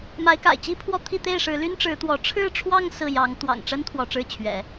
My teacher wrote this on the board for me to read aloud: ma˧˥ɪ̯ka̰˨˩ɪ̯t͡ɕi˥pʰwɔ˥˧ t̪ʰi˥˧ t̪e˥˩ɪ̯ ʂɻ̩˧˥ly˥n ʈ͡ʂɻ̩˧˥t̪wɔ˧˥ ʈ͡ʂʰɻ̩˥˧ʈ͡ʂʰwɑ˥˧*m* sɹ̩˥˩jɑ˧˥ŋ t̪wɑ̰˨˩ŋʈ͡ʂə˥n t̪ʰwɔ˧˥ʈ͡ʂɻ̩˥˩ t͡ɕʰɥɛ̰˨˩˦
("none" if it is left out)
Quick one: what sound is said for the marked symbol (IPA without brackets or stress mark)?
ŋ